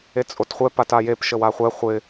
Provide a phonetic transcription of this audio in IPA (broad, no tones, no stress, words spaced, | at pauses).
et͡sʼotχʷɛ patajep ʃəwaχʷɛ χʷɪ